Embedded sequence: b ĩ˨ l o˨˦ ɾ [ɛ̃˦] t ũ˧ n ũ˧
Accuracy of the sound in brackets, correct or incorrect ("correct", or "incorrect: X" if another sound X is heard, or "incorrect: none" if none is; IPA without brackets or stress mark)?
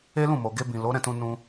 incorrect: ɛ̃˦˨